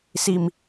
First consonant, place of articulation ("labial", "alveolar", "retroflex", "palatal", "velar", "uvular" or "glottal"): alveolar